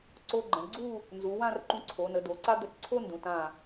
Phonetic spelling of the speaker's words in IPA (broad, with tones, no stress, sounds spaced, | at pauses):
ǀ o˧ ɡ͡ǃ ə̃˩˧ ɳ ɡ͡ǀ u˥˧ | n z u˩˧ w ã˥˧ r ǃ ũ˧ ǀʰ o˩˧ n ə˩˧ d o˩˧ ǀ a˥ d̪ ə˧ t ǀʰ o˥ n d ũ˩˧ t ã˧˩